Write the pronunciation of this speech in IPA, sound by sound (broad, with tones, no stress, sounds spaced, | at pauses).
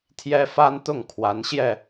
t̪ʰ j ɛ˥ f a˥ n t̪ ʊ˥˩ ŋ kʰ w a˧˥ n ɕ j ɛ˧